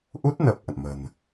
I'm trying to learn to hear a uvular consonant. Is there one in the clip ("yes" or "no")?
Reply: no